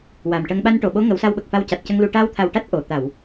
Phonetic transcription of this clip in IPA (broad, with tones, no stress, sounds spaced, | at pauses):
w a˨˩ m ʈ ə˧ ŋ ɓ a˧ n ʈ o˨˩˨ ɓ o˧˥ ŋ ə˨˩˦ w s a˧ w ɓ ə˨˩ k̚ f a˧ w c a˨˩ t̚ c ə˧ ŋ l u˧ ʈ a˧ w t̪ʰ a˨˩ w ʈ a˦˥ t̚ ʔ o˨˩˨ t̪ a˨˩˨ w